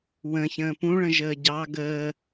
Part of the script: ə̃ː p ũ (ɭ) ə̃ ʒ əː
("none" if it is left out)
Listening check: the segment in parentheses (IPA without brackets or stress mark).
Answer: ɭ